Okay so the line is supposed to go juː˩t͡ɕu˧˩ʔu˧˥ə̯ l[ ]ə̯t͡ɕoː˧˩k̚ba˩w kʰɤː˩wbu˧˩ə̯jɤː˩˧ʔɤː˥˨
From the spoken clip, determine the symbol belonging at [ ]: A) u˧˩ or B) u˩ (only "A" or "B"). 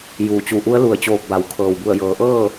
A